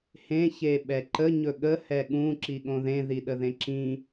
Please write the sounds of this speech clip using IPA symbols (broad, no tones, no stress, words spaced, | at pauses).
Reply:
hẽ çeɓɛǃə ɲɵɠə hɛɠũ ǁiɠõðẽ ðiɗəðẽǁĩ